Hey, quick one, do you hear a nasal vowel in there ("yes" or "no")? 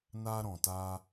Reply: yes